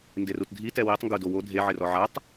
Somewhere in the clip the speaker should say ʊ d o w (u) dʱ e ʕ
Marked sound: incorrect: o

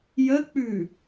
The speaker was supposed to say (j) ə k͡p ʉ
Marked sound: correct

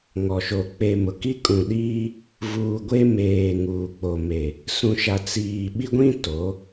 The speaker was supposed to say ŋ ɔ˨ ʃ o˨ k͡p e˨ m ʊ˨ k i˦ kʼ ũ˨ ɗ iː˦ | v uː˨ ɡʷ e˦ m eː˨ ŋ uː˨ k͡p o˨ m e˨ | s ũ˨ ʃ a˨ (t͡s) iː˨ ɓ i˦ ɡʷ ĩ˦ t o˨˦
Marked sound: correct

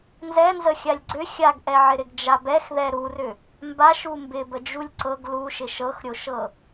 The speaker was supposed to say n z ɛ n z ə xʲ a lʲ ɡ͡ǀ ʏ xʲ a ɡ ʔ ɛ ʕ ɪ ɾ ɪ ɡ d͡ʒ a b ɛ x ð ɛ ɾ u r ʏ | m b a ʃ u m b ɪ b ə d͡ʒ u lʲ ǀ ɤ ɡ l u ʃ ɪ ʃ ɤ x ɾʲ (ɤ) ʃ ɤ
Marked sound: incorrect: o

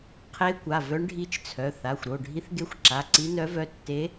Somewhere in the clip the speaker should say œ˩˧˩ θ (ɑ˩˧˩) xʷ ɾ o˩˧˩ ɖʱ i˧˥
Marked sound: incorrect: a˩˧˩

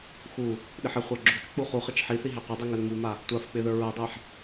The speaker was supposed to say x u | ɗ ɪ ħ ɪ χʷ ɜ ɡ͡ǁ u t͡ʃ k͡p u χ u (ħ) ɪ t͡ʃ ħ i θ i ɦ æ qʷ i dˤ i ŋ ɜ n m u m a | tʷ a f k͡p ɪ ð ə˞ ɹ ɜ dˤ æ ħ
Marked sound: incorrect: χ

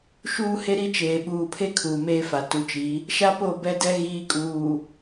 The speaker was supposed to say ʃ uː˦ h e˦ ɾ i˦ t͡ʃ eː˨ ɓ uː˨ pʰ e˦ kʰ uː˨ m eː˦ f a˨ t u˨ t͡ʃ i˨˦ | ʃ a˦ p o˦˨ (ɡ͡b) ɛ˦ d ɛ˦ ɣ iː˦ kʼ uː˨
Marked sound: incorrect: b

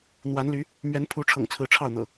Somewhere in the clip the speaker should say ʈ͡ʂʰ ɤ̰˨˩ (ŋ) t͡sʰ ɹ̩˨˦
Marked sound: correct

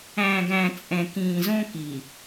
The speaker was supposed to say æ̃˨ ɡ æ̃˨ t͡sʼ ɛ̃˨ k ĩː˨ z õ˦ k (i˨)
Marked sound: correct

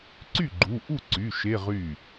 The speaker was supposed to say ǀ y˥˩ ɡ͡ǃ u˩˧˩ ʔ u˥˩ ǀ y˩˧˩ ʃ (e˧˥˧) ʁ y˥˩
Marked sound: correct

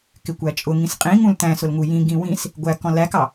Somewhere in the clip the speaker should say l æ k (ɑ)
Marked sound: correct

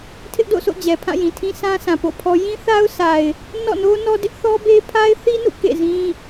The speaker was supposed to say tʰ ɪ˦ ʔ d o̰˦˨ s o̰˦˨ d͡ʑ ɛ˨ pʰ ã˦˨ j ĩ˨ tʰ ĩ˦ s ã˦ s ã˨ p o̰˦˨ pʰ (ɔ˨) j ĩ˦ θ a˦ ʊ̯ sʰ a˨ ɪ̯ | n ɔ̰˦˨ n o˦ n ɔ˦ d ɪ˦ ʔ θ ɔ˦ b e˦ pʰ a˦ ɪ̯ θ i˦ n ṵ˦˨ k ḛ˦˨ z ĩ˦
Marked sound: incorrect: ɔ˦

